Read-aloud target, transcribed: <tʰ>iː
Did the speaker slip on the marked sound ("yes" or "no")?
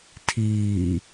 no